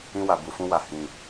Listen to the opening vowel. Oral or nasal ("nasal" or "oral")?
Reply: nasal